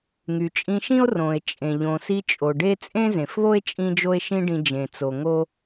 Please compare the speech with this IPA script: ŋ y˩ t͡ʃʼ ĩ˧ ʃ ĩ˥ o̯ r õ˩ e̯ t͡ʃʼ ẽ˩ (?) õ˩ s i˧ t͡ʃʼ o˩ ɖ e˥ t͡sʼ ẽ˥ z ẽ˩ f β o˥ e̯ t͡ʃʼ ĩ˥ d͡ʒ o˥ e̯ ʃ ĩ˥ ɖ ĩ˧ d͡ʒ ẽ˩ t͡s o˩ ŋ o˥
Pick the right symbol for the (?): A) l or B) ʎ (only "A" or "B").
B